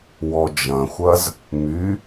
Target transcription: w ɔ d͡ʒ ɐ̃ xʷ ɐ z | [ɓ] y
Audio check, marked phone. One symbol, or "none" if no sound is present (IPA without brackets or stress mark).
m